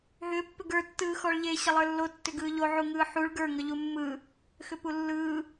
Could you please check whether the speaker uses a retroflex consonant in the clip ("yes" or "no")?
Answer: yes